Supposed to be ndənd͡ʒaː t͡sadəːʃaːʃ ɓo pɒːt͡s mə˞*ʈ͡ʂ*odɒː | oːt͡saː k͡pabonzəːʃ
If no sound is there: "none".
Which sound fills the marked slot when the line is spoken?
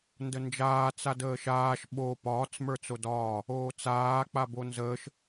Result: t͡s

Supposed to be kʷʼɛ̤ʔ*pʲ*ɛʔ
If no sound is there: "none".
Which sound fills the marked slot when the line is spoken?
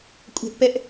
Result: p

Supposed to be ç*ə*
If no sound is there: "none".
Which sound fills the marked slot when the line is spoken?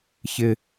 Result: ɪ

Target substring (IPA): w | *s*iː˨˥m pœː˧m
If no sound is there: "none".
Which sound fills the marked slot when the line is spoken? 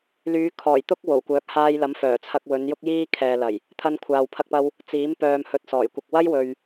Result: t͡s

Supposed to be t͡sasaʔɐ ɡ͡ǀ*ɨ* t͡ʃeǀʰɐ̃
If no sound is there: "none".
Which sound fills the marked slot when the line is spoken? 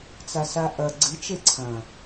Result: ɨ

